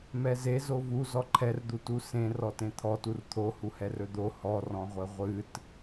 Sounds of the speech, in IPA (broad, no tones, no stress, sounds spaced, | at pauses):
m ɛ z e z o v u z ɔ ǃʰ ɛ r d̪ u t u s ẽ r ɔ t ẽ t̪ʰ ɔ t u r t̪ʰ o h u h ɛ r ɵ d̪ o h ɔ r ɔ̃ ʁʷ e ʁʷ ɨ t